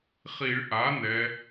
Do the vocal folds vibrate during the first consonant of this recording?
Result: no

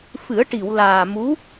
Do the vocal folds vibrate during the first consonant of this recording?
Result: no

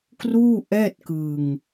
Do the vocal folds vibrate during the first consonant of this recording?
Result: no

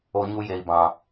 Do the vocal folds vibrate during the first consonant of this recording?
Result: yes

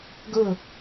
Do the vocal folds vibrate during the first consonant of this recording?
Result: yes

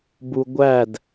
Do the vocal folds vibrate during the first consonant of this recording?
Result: yes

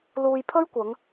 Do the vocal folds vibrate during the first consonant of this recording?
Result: yes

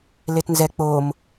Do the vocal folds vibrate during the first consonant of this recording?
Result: yes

